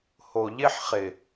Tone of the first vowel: low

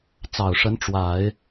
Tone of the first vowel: low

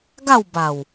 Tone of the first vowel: falling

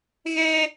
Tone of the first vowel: high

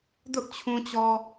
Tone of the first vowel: high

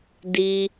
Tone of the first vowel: high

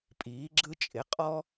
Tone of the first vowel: rising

